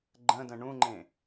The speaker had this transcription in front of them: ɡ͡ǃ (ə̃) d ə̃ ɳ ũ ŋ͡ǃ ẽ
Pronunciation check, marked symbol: correct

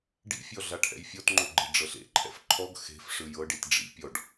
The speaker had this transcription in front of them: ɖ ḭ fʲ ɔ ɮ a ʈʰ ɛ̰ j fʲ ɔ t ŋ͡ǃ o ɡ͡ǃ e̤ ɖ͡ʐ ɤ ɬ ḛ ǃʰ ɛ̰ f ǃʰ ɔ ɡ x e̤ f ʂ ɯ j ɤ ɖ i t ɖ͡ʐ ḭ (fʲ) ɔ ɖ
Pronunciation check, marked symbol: incorrect: pʲ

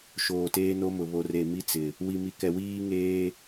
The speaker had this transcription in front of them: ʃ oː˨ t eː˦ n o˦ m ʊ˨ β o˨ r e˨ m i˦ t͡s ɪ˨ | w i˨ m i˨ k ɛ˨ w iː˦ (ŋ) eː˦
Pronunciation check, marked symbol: correct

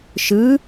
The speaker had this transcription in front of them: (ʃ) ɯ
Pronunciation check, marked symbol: correct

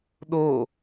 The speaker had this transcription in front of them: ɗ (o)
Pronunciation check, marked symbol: correct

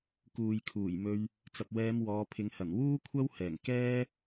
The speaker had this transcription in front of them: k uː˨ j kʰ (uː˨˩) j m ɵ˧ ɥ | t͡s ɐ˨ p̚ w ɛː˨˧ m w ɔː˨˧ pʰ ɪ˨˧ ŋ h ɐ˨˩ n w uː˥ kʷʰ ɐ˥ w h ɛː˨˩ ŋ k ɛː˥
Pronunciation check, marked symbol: correct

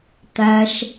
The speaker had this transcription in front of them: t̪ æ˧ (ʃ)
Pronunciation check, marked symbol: correct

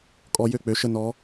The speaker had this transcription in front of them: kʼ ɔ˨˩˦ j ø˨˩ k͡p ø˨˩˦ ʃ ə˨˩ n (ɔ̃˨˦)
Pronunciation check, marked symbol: incorrect: ɔ˨˦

